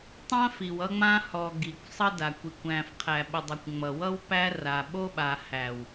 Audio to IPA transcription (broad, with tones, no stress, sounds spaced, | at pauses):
tˤ ã˦ f i˨ w ʌ˦ ŋ͡m ã˦ h ɔ˨ ɡ i˨ kʷ sˤ ʌ˦ d a˨ kʷ i˨ kʷ æ̃˨ f qʰ æ˨ ɓ ə˨ dˤ ʌ˨ kʷ ŋ͡m ʌ˨ w ʌ˦ w p æ˦ r a˨ ɓ o˦ ɓ a˨ h æ˨ w